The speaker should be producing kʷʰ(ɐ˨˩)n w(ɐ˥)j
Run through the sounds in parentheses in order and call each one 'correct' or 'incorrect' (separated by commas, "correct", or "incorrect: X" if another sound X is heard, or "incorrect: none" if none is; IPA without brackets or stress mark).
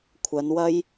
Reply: incorrect: ɐ˨˧, incorrect: ɐ˧